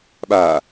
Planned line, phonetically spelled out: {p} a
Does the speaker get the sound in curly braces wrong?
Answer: yes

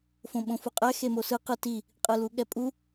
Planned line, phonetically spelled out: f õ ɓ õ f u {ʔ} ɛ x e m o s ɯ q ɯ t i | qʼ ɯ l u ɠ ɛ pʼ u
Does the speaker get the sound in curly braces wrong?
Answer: yes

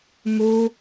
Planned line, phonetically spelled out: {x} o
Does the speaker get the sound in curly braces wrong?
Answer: yes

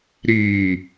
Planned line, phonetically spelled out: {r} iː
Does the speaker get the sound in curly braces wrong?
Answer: yes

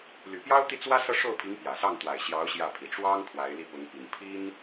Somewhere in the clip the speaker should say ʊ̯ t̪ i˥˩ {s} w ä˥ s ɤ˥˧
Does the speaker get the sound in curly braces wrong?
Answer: yes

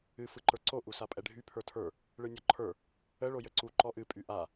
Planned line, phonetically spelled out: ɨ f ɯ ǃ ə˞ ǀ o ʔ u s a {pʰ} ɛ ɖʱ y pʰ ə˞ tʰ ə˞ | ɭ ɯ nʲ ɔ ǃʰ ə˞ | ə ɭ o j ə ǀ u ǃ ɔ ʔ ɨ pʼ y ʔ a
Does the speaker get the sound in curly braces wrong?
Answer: yes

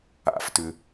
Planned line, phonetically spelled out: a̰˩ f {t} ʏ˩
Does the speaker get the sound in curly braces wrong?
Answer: no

